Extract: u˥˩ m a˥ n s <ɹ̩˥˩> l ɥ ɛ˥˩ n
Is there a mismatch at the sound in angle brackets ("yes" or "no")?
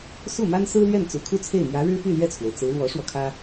yes